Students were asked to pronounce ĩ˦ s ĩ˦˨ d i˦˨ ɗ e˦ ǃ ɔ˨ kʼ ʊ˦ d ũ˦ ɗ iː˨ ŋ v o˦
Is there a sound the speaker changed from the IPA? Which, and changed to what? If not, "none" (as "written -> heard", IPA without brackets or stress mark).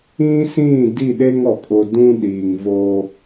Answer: ǃ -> ŋ